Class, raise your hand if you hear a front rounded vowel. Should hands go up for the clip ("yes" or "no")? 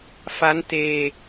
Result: no